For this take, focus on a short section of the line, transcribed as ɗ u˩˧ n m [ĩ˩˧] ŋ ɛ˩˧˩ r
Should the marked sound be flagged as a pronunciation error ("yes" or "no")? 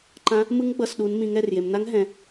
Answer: no